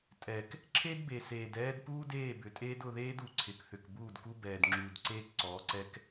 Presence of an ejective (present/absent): present